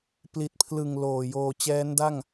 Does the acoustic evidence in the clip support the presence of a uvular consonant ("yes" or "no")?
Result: no